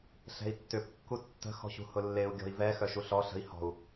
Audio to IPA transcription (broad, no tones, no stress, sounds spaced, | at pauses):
ɬ ɛ̤ i̯ tː ʏ p kː u tː ə̤ x ɔ̤ ɕ ṳ h ʊ lː e u̯ ɡʲ ɔ̤ i̯ v ɛ x œ ʃ u ɬ ɔ ɬ ə̤ i̯ h ɔ̤ u̯